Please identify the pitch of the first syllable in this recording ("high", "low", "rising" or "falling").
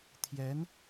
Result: rising